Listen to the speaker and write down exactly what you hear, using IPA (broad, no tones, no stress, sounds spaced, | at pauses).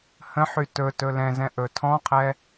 h ə̃ ħ y t ɵ t ɵ l ɛ̃ z ɛ̃ ʔ ɵ tʰ ɔ̃ qʰ ɛ